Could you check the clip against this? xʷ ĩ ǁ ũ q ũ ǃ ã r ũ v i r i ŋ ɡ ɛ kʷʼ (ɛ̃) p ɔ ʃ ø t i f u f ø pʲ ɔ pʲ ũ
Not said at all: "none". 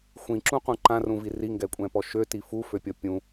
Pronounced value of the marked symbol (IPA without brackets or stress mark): ɛ̃